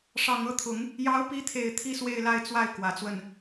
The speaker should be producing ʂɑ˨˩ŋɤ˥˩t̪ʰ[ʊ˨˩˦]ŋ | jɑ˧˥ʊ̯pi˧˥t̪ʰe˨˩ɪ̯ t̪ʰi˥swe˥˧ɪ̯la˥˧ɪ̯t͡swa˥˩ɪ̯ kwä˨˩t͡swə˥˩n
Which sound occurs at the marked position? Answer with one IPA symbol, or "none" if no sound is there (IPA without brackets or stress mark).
ʊ˨˩˦